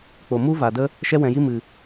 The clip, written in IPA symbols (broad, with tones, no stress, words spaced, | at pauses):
k͡po˨mu˦va˨də˦ | ʃɛ˧wɛ̃˨ji˧mɨ˨